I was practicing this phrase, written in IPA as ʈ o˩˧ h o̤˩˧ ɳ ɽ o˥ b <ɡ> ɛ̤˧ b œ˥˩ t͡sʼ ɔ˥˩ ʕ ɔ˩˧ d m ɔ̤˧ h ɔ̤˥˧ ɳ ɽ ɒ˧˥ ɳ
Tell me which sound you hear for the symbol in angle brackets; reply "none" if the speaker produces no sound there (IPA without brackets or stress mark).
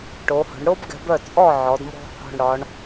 ɡ